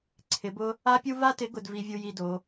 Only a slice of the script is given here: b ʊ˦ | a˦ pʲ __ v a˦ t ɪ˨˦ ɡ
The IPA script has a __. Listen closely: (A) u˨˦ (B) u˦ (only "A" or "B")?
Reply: B